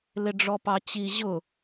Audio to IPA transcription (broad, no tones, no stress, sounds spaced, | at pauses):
l ɪ ɖ͡ʐ ɔ p ɑ t͡ɕ i ʑ ʊ